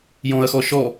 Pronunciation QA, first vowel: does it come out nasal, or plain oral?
nasal